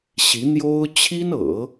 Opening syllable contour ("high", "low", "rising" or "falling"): rising